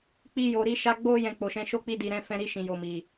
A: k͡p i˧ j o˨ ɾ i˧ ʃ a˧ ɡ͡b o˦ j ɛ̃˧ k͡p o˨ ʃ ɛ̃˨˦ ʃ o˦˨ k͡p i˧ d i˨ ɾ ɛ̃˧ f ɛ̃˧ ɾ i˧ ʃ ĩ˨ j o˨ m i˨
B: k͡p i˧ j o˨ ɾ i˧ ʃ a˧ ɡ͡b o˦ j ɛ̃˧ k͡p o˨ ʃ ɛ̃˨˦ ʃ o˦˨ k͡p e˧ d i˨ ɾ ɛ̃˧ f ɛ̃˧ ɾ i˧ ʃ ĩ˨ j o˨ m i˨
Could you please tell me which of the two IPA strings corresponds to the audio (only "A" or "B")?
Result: A